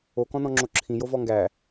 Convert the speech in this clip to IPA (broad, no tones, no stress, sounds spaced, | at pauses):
o k ɔ̃ n ɔ̃ ŋ͡ǁ o ǁʰ ĩ j o v ɔ ŋ ɡ æ